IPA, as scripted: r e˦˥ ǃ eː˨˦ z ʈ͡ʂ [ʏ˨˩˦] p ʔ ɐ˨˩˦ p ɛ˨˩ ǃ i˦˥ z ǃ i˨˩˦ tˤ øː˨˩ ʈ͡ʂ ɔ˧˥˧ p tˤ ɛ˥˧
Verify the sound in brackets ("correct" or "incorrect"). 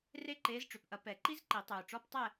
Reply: incorrect